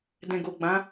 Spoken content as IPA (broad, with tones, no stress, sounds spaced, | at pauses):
d ɛ̃˨ ɡ o˨ ɡ͡b ã˨˦